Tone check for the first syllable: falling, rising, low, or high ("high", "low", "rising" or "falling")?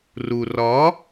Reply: low